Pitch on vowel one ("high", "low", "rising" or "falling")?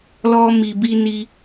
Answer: high